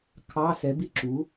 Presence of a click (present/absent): present